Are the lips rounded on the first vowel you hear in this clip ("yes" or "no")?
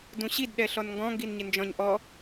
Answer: yes